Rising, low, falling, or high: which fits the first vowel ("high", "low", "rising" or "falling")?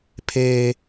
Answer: high